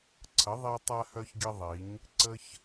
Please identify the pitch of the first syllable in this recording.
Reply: rising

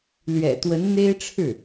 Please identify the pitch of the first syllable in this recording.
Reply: low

